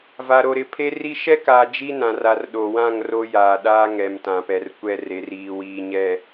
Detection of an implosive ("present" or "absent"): present